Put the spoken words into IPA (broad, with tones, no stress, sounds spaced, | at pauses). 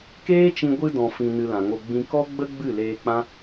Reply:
k eː˦ t͡ʃ ĩ˧ ɡʷ ɨ˧ d ɔ̃˨ f ĩ˨ n ɨ˧ l ã˨ ŋ o˧ ɡ͡b ĩ˧ k ɔ˦ ɡ͡b ə˦ ɡ͡b ɨ˦˨ l eː˧ k͡p ã˦